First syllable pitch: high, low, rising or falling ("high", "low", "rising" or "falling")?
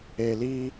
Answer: low